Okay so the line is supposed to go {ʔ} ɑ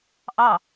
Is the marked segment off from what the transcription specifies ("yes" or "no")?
no